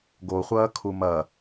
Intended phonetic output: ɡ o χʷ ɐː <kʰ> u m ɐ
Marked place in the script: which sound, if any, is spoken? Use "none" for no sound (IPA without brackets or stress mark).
kʰ